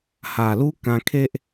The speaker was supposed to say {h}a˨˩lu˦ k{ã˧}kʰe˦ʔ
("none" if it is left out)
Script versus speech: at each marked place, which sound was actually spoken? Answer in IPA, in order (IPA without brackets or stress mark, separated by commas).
h, ã˧